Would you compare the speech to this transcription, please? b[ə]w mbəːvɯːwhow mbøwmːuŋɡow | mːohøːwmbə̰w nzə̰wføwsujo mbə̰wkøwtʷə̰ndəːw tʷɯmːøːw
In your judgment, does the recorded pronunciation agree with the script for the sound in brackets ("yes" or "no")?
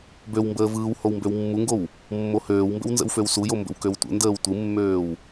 no